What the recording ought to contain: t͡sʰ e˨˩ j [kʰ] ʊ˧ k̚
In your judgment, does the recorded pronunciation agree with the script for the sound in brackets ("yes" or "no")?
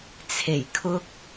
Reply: yes